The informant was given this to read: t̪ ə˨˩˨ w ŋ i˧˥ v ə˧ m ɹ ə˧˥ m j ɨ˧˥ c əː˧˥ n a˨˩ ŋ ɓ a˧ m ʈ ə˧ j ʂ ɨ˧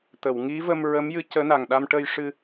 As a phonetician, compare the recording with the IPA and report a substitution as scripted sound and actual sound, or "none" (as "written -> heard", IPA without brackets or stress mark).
ɓ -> ɗ